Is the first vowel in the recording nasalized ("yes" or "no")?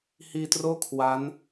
no